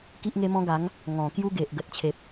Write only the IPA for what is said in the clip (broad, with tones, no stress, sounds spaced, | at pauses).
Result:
k i˦ ʔ ŋ e˦ m ɔ̃˦ ɡ a˨˦ ŋ | ŋ ɔ̃˨˩ k j u˦ ɡ e˨ ʔ ɡ ə˨ t̚ t͡ɕʰ e˨ p̚